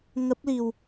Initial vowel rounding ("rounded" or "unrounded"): unrounded